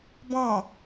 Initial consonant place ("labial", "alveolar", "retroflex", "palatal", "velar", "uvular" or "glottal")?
labial